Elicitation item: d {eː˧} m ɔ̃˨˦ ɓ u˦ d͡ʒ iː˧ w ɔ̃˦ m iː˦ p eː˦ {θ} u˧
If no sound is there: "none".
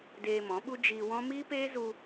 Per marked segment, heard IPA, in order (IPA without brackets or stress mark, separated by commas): eː˧, z